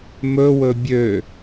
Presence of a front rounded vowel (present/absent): present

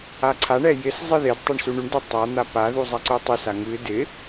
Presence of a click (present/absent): present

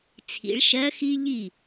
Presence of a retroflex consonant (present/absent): present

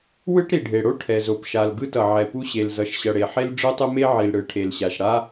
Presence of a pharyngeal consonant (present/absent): present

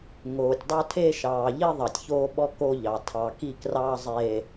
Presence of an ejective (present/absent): absent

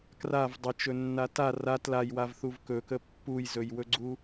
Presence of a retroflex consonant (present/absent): absent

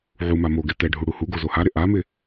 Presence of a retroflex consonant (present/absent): present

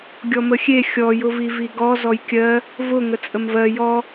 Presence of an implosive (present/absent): absent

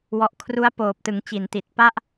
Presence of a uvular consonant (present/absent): absent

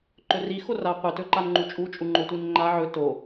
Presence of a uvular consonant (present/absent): present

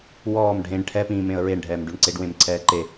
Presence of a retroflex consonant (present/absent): present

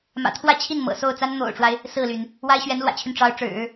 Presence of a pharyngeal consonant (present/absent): absent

